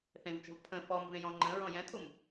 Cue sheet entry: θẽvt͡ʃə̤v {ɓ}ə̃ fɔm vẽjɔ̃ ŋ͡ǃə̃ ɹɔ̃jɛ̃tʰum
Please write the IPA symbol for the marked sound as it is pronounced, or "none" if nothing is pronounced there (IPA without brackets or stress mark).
pʰ